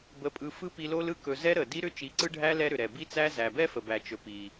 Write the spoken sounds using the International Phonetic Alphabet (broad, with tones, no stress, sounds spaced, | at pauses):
b ə˧ pʼ ɯ˧ f ɯ˦ p i˧ l o˦ l ɯ˦ k ɵ˧ z ɛ˦ ɾ ə˨ d i˦ ɾ ʏ˦ t͡ʃ i˨˦ ǀ ɯ˦ ɖʱ æ˦ l ɛ˦ ɾ ʏ˨ ɾ ɛ˨ b i˦ t͡s æ˦ z æ˨ b ɛ˦ f ə˨ b æ˨ t͡ʃ ɵ˨ p i˨